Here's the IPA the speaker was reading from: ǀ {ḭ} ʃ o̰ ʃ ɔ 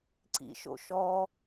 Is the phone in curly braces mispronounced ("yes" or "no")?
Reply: no